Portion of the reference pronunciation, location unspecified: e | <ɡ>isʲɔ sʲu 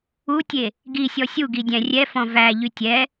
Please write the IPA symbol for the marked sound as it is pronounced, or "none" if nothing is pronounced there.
ɡ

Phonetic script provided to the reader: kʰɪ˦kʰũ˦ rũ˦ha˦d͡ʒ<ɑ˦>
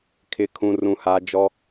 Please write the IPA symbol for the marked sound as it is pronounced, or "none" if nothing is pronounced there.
ɔ˦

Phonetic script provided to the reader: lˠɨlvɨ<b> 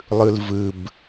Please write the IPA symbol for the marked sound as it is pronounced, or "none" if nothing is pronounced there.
b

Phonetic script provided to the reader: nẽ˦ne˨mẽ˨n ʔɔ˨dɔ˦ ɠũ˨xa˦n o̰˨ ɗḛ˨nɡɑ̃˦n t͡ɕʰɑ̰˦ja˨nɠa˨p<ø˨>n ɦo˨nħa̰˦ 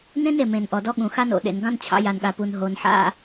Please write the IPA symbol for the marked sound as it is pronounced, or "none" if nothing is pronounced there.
u˨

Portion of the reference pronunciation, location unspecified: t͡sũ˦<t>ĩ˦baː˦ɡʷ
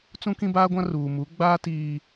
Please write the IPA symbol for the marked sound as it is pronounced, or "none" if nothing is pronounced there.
k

